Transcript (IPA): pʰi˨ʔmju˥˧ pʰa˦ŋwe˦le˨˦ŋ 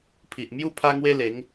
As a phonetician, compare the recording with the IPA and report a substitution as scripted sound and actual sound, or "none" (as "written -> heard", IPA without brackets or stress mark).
none